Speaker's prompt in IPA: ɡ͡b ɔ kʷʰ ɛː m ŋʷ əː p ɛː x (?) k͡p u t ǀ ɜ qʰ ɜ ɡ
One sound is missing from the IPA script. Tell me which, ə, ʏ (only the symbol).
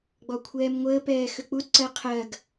ʏ